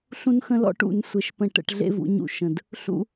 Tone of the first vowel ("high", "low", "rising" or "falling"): high